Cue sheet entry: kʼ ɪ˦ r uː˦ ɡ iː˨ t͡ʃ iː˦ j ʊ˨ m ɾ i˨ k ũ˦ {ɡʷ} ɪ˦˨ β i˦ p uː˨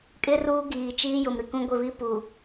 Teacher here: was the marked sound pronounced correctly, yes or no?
yes